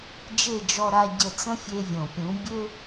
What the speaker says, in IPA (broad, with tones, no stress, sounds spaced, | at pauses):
d͡ʒ e˦˨ d͡ʒ ɔ˧ ɾ a˧ ɟ ə˧ t͡s ə̃˦ fʲ e˧ vʲ õ˨ pʲ ũ˨˦ bʲ ø˦